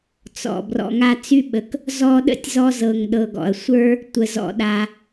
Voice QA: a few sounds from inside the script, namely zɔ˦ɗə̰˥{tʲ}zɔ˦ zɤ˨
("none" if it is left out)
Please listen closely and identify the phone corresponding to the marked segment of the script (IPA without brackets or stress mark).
tʲ